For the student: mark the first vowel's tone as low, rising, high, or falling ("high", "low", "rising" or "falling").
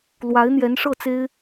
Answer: rising